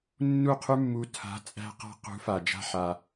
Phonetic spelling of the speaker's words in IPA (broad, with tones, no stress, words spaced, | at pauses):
nːu˦˨qʰʉ˦mːu˧ tʰa̤˨˦ t͡sʼæ̤˦qa̤˦ qṳ˨˦fa˨ d͡ʒa̤˦ħa˧